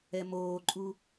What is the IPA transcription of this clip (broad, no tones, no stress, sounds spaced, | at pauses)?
ɛ m oː ǃʼ u